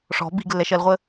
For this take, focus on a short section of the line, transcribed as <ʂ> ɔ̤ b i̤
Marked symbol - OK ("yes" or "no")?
yes